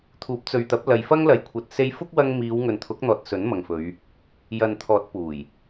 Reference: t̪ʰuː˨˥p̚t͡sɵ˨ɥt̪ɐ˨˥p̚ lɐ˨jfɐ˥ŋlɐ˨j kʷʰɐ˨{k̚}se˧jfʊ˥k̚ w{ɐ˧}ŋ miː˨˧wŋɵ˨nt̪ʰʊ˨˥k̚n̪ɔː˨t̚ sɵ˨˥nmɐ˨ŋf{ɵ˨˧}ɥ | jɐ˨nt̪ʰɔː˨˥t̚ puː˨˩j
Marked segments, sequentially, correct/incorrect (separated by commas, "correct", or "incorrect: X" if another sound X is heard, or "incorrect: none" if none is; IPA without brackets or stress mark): incorrect: t̚, correct, correct